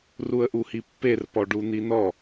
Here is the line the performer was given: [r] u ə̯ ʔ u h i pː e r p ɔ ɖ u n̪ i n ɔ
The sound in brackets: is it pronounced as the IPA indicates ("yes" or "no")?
yes